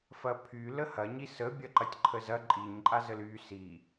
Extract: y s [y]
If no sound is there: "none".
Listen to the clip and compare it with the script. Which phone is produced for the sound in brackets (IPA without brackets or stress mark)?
i